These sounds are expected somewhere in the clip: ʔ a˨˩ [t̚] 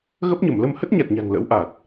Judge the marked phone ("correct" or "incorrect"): correct